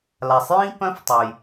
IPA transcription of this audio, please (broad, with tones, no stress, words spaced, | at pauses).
la˩sˤjĩ˧ pœ̃˧˥ftˤø˩j